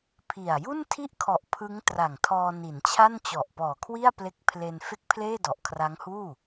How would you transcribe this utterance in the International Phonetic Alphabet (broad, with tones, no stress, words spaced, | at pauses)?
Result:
pʰi˨˩a̯ ju˥˩ntʰi˥˩ʔkʰɔ˨˩ʔ pʰɯ˦˥ŋ tra˨˩ŋtʰɔː˧ ni˩˦nt͡ɕʰa˥˩nt͡ɕɔ˨˩ʔpɔː˨˩ kʰwi˥˩a̯ple˦˥k̚ pʰle˧n fe˥˩k̚ pʰleː˥˩dɔ˨˩ʔkʰra˦˥ŋhuː˥˩